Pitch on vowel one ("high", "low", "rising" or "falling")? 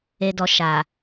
low